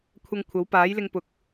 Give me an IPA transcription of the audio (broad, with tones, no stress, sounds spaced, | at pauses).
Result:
kʷʰ ɐ˧ ŋ kʷʰ ɐ˨˥ w p aː˨˥ j l ɪ˧ ŋ p ʊ˨ k̚